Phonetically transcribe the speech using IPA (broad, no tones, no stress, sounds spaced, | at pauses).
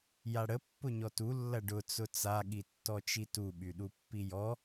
j a ɽ ə pː ʊ ɲ ɔ t u lː ɐ ɖ ʊ t͡s ʊ t͡s a ɠ i tː ɔ t͡ʃ i t u ɓ y ɗ u pː i j ɔ